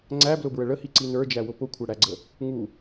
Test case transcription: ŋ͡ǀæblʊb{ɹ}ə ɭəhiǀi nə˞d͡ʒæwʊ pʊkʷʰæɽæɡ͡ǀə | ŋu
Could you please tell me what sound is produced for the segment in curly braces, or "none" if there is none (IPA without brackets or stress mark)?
ɹ